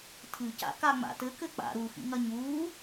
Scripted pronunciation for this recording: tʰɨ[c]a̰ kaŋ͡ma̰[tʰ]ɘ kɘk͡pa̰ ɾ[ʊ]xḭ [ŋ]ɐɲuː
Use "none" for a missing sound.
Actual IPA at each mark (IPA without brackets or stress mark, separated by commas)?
c, t, u, ŋ